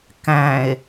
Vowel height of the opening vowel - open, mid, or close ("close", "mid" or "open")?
open